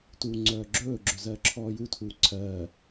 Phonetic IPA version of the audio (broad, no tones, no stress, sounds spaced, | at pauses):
t uː ŋ͡ǀ œː ɡ͡ǁ ɵː ɡ͡ǁ ɵ z ɜː ǁʰ ɔː j u tʰ uː ǀʰ ɜː